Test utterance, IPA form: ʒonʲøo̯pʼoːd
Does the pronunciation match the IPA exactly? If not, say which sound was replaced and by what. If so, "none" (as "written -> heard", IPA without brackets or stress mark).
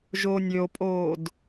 none